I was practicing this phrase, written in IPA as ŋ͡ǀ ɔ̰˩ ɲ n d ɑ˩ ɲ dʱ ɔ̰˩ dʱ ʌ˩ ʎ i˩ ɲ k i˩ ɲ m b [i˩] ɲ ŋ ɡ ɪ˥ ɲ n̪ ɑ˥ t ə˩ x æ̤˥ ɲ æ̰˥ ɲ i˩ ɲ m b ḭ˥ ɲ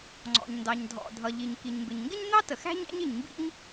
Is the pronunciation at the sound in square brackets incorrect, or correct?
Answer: incorrect